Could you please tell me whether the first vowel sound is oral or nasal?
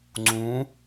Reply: nasal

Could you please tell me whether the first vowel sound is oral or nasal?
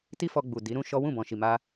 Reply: oral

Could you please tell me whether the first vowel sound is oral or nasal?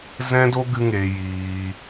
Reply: nasal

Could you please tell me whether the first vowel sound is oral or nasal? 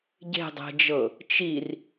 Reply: oral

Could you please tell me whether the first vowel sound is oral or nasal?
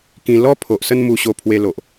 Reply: nasal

